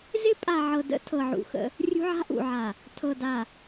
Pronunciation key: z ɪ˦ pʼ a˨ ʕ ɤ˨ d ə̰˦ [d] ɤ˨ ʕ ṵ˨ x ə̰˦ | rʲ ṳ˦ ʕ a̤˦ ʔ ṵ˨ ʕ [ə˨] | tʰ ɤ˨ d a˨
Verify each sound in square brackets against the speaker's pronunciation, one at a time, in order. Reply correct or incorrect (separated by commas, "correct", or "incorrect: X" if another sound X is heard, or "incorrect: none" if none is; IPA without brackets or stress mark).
incorrect: tʰ, incorrect: a˨